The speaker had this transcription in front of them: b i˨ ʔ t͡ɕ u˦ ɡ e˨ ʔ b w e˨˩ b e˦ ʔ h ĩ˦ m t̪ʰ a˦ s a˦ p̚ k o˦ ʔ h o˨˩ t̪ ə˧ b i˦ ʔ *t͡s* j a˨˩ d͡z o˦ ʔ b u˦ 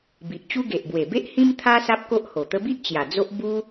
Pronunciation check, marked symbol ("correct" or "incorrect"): incorrect